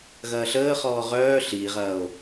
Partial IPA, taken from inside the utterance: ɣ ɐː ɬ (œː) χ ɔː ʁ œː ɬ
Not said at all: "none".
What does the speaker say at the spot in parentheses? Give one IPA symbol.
əː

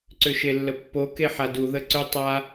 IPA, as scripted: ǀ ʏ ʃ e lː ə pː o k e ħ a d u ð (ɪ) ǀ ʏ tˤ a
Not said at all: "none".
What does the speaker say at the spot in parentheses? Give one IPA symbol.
ə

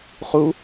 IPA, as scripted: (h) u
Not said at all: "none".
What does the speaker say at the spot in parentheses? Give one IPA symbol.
χ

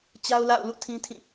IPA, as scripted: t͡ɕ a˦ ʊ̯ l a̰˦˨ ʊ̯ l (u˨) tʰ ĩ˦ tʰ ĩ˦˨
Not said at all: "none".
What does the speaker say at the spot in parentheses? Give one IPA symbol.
ṵ˦˨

